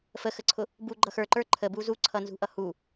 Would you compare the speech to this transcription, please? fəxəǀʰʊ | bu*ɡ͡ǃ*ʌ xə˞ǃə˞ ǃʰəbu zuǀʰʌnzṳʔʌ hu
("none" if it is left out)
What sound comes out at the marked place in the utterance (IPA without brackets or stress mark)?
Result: ɡ͡ǃ